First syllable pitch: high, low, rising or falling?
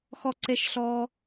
high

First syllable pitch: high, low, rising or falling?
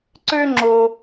high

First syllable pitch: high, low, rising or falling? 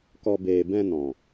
low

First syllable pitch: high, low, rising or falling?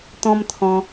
high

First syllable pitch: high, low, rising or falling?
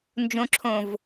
low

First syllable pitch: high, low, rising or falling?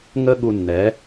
high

